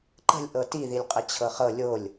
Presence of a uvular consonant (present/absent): present